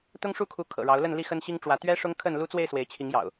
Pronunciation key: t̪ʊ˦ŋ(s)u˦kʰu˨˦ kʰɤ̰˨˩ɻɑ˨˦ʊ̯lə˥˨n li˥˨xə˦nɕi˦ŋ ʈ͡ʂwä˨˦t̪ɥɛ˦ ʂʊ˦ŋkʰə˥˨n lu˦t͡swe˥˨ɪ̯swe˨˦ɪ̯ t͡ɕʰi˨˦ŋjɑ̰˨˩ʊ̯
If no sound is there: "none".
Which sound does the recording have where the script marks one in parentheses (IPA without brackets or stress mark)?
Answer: ʂ